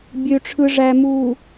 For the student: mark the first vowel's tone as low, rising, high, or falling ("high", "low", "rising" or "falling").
low